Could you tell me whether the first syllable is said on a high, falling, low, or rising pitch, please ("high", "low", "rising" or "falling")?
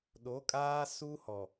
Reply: rising